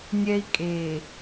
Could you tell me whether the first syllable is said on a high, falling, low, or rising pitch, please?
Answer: high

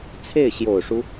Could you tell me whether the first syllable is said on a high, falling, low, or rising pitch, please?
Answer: falling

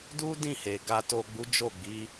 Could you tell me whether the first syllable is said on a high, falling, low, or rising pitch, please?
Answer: high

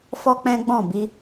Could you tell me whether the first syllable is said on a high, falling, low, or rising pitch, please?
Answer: high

